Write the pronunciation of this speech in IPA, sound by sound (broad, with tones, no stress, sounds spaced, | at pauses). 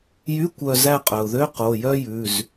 j y˧˥˧ kʷ œ˦˨ z æ˦˨ qʼ œ˩ ʊ̯ ð ø˧˥˧ q o˩˧˩ j œ˥ j ʉ˩˧˩ z